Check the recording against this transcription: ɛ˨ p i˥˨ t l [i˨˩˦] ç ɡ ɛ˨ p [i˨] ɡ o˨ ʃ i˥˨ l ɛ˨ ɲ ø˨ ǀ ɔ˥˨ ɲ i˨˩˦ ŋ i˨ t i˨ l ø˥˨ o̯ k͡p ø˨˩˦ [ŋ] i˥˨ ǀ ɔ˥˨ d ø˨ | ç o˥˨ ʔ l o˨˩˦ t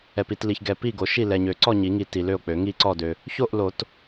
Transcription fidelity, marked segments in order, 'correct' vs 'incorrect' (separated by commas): incorrect, incorrect, correct